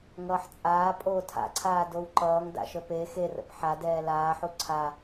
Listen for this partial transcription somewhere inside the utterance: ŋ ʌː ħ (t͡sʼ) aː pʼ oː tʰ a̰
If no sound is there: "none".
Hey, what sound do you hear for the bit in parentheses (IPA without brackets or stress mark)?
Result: t͡sʼ